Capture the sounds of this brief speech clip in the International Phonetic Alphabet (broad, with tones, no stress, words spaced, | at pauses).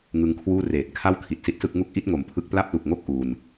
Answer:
ŋɯ˧ŋkʰwuː˥˩ reː˨˩t̚ kʰa˥˩wkʰi˨˩t̚si˦˥t̚sɯ˥˩k̚ ŋu˦˥k̚ʔi˦˥t̚ ŋo˩˦mpʰɯ˥˩k̚ pla˥˩p̚lu˨˩k̚ŋo˥˩k̚ ʔu˧n